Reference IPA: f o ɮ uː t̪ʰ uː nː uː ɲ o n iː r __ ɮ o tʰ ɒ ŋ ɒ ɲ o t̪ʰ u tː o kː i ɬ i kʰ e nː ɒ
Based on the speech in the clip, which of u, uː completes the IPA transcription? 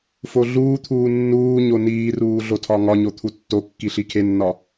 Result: uː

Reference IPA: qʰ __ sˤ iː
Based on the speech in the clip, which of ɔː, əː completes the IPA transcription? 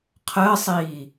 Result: əː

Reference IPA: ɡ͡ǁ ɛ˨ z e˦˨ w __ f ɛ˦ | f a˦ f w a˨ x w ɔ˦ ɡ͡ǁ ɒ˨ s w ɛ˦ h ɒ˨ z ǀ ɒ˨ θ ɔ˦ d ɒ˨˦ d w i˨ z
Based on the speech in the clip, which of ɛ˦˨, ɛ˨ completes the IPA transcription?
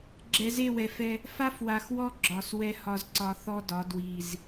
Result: ɛ˨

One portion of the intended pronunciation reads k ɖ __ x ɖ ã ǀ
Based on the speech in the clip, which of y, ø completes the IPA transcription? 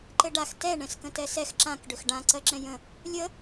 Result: ø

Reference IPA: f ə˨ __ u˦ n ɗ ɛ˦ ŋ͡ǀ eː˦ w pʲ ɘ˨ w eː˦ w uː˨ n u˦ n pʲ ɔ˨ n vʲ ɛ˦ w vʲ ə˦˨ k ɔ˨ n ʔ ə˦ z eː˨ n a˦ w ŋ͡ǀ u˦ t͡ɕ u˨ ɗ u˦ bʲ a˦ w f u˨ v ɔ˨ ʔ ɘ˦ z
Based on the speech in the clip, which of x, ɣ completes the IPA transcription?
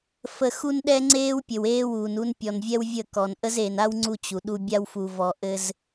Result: x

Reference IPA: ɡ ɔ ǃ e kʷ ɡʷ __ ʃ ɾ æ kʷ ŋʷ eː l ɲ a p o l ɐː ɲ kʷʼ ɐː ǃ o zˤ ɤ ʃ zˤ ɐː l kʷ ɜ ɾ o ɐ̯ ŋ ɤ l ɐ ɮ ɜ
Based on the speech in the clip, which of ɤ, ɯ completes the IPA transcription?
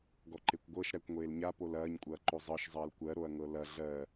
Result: ɤ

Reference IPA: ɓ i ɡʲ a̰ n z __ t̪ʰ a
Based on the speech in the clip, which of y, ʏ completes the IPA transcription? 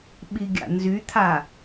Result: y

